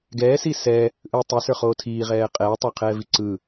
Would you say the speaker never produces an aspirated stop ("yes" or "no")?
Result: no